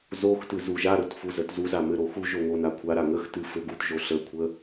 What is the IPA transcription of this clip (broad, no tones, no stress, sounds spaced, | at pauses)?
z o x t ɨ z u ʒ a ɾ o t f u z ə t z u z a m ɘ ɾ o x u ʒ o ŋ o n a kʷʰ a ɾ a ŋ ə x t ɨ f ɘ ɡ u t ʒ o ɬ ə kʷʰ ə